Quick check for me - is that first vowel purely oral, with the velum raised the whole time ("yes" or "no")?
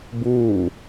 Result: yes